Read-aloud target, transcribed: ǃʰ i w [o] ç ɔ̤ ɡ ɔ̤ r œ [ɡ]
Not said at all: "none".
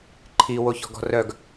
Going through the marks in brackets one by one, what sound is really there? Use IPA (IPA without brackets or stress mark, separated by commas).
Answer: o, ɡ